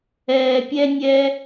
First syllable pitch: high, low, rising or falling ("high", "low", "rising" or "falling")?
low